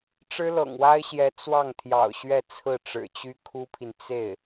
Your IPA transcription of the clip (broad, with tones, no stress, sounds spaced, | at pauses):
ʈ͡ʂ ɻ̩˥ l ɤ̰˨˩ ŋ w a˥ ɪ̯ ɕ j ɛ˧˥ t͡s w ɑ˥˩ ŋ t̪ʰ j ɑ̰˨˩ ʊ̯ ɕ ɥ ɛ˥˧ t͡sʰ ɹ̩˥˩ ʈ͡ʂ ɻ̩˨˩ t͡ɕ y˥ kʰ u˥ pʰ i˨ n t͡s e˥˩ ɪ̯